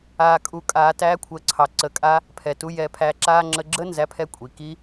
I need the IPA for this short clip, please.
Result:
aː˧ kʼ u˧ kʼ aː˧ t æː˦ kʷʰ əː˧ ǀʰ ɑ˧ ǀ əː˧ kʼ a˦ | pʰ ɛ˨ t u˧ j ɛː˧ pʰ æː˧ ǁ aː˧ ŋ͡ǁ ə˧ ɡ͡ǁ ə˦ n z æ˦ pʰ ɛ˦ kʷʼ i˨ k i˦

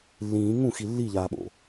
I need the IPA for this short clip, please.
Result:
lː ĩː ŋ ũ x i lː i ʎ aː ɓ o̰

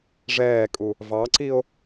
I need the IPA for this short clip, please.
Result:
ʐ ɛː kʼ u | v ɑ ǀ i o̯

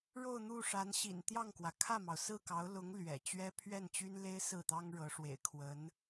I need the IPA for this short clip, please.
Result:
ɻ o˥˧ ʊ̯ n̪ u˥˩ ʂ a˧˥ n ɕ ḭ˨˩ n t̪ j ɑ˥˩ ŋ k w ä˩ kʰ ä˥˩ m ɑ˩ ʊ̯ s ɹ̩˥˩ k ɑ˧˥ ʊ̯ l ʊ˧˥ ŋ l ɥ ɛ̰˨˩ t͡ɕ ɥ ɛ˥ pʰ ɥ ɛ˥˩ n t͡ɕ y˥ n l e˥ ɪ̯ s ɹ̩˥˩ t̪ ɑ˥ ŋ ɻ ɤ˧˥ ʂ w ḛ˨˩ ɪ̯ kʰ w ə˧˥ n

